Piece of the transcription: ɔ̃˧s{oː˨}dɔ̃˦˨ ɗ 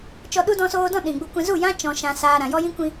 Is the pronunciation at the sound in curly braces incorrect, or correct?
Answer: incorrect